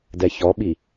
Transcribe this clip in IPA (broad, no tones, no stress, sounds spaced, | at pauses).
d ɛ ç ɔ ɓ i